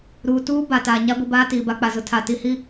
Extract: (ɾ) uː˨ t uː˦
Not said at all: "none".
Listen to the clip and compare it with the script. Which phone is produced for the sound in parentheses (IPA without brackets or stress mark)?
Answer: ɾ